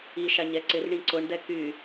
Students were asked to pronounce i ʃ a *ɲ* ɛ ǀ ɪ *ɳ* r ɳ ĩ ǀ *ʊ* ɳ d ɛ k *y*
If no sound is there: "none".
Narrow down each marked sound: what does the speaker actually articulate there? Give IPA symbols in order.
ɲ, none, ʊ, y

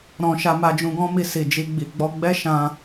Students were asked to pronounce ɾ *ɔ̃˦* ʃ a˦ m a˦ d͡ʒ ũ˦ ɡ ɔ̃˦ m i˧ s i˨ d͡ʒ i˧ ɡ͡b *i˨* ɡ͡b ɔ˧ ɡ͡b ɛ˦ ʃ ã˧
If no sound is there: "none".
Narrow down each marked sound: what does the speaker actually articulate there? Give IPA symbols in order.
ɔ̃˦, i˨

